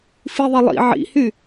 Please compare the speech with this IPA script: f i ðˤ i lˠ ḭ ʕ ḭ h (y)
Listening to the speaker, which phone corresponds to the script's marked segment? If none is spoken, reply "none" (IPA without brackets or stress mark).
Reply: y